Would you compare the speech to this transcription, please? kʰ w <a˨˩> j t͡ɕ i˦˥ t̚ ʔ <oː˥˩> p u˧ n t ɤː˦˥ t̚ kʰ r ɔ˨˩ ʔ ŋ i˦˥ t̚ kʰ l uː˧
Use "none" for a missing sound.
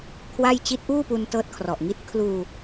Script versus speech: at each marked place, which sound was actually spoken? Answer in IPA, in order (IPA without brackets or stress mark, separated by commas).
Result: a˥˩, uː˥˩